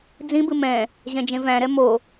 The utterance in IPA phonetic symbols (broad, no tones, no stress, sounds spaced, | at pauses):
d͡z ĩ b ɨ m ɛ̃ | ʑ ɛ̃ d͡ʒ ẽ v æ̃ ɾ ɛ m o